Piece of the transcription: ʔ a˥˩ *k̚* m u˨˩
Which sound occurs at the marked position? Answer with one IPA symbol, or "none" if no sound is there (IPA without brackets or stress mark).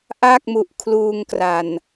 k̚